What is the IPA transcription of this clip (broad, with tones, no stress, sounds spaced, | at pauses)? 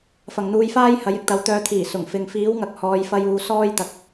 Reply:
f ɐ˨ ŋ n̪ uː˧ j f aː˥ j h ɐ˨˥ j ɪ˨˥ k̚ t̪ ɐ˨˥ w t̪ œː˧ t̪ʰ iː˨˩ s ʊ˨˩ ŋ f ɪ˨ ŋ f iː˨˥ w ŋ ɐ˨ k̚ h ɔː˨˧ j f ɐ˧ j uː˨˧ s ɔː˥ j t̪ ɐ˨ k̚